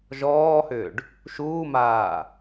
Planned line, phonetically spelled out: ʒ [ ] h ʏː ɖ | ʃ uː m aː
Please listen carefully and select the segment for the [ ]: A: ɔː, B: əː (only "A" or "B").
A